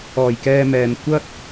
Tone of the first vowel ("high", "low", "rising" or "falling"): low